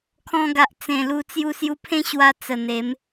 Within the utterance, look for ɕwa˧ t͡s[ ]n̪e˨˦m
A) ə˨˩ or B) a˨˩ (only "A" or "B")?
A